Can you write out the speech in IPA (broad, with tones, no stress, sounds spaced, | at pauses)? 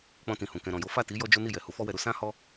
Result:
k͡p ɔ̃˧ t ĩ˨ h ũ˨ k ɛ̃˨ ɾ ɔ̃˨ j o˨˦ f a˦˨ t i˨˦ j ɔ˦ d͡ʒ o˦ n i˦˨ j ɛ˨ h u˨˦ f ɔ˦ w ɛ˧ ɾ u˦ s ã˦ h ɔ˦